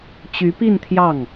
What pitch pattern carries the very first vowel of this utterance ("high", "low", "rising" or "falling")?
rising